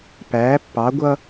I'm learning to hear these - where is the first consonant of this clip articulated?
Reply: lips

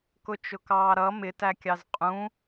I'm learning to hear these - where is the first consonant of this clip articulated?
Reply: velum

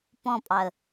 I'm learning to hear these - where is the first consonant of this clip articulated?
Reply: lips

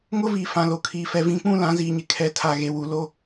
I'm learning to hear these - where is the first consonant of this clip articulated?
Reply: velum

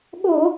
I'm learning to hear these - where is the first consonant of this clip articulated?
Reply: velum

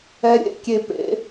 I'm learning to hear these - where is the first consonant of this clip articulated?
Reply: tongue tip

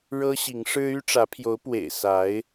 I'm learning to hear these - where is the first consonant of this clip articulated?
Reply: retroflex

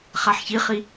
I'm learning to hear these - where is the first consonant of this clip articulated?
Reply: uvula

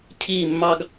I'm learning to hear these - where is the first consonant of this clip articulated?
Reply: palate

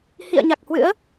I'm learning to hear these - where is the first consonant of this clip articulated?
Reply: throat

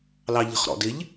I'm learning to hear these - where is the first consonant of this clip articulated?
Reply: tongue tip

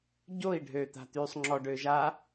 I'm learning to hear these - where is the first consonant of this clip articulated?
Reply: palate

